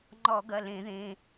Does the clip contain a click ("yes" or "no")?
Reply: yes